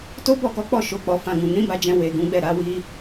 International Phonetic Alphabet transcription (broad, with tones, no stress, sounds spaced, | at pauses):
t o˦ b ɔ˦˨ k ɔ˨˦ k͡p ɔ˦˨ ʃ o˨˦ k͡p ɔ˧ f ã˧ ɡ ũ˨ n ĩ˨˦ b a˧ d͡ʒ ɛ̃˧ w e˨ ɡ ũ˨˦ ɡ͡b ɛ˦˨ ɾ a˨˦ w i˦